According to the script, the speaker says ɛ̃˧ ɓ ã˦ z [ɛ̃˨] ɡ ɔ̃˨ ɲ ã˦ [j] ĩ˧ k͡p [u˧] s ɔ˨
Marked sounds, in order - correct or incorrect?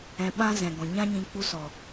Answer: correct, incorrect: ɲ, correct

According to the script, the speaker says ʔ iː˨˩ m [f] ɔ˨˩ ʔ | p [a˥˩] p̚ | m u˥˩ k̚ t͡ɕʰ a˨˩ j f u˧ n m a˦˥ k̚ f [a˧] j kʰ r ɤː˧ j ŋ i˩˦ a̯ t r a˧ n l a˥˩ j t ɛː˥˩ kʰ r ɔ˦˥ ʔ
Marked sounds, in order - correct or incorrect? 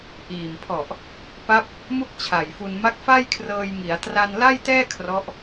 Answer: incorrect: pʰ, incorrect: a˦˥, incorrect: a˥˩

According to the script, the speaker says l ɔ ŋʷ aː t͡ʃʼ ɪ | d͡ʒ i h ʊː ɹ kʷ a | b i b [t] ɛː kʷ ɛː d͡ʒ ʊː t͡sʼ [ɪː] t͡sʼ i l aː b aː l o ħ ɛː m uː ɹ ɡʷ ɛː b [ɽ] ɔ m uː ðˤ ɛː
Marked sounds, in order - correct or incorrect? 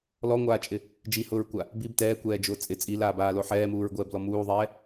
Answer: correct, incorrect: ɪ, incorrect: l

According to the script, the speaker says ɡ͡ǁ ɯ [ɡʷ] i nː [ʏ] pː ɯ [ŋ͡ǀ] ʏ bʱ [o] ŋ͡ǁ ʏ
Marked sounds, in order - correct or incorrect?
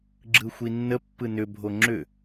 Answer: incorrect: xʷ, incorrect: ə, incorrect: n, correct

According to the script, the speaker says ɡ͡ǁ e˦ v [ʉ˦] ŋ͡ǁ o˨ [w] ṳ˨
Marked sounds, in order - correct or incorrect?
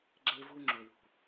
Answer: incorrect: u˦, correct

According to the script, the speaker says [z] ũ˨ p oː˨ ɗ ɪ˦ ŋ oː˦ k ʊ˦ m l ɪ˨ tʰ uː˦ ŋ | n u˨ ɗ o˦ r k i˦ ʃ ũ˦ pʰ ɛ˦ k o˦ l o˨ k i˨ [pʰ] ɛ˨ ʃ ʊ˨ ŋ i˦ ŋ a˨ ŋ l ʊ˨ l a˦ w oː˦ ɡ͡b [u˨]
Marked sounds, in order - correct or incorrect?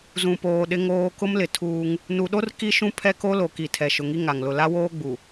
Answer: correct, incorrect: tʰ, correct

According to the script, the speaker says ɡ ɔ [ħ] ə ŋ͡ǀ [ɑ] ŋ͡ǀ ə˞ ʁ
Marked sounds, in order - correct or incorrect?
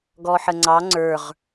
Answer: correct, correct

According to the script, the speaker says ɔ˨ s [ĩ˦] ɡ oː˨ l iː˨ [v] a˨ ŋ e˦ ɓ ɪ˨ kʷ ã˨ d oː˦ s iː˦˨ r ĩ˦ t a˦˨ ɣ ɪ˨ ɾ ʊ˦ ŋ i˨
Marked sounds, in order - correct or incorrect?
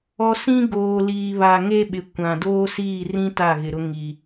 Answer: correct, incorrect: β

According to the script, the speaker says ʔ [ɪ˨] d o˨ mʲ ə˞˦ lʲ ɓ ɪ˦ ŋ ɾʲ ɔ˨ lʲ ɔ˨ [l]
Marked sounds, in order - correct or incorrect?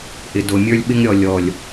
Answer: correct, incorrect: lʲ

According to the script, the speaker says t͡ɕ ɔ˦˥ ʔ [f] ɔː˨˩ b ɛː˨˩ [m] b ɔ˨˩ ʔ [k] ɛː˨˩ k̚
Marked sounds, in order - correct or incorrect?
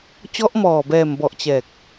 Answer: incorrect: m, correct, incorrect: t͡ɕ

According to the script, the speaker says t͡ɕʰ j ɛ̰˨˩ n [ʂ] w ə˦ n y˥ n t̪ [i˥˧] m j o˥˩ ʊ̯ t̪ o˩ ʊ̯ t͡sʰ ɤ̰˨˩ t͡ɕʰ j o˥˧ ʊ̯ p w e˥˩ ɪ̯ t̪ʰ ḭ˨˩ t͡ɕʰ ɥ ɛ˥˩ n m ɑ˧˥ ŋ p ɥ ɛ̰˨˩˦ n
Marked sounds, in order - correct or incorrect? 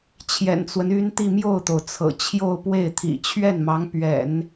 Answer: incorrect: t͡s, correct

